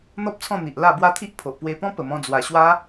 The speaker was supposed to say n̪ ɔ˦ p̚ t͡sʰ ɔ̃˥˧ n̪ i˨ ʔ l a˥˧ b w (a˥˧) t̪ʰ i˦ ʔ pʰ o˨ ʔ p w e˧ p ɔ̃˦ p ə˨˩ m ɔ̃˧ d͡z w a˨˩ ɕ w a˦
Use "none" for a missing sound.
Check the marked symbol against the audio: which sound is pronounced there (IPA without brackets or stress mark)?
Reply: a˦